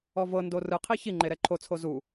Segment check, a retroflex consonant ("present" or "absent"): absent